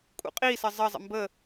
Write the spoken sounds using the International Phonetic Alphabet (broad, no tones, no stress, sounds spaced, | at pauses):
kʼ ṵ qʼ i s ə zˤ ə zˤ ə̰ m b ə